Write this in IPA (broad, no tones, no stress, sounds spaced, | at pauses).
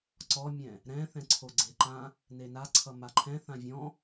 ǀ ɔ mʲ ɛ̃ | ɾ ɛ̃ θ ɛ̃ ǀʰ o ɡ͡ǀ e ǃ ã | n e n a ǀʰ ʌ m a ǃʰ ɛ̃ θ ã vʲ ɔ̃